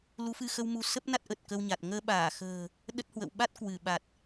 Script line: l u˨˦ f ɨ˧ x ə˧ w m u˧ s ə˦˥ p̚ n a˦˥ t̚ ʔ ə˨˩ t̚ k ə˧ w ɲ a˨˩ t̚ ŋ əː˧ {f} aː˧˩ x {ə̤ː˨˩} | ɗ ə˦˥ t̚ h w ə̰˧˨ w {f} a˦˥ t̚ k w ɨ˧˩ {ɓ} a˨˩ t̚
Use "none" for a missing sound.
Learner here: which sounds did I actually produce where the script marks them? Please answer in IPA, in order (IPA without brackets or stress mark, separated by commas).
ɓ, ə̤ː˨˩, ɓ, ɓ